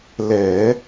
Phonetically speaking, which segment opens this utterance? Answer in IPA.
l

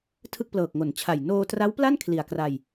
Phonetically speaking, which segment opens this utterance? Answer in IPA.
tʰ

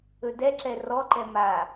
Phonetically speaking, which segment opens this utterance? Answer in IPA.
ɵ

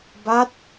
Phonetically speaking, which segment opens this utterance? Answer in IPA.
b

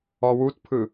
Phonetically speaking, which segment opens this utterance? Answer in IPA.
ɔ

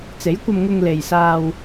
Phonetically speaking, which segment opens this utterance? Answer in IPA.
t͡s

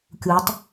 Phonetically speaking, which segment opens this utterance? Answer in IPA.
kʲ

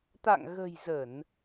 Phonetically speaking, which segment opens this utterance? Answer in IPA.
t̪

